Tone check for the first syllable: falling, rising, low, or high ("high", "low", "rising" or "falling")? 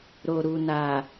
low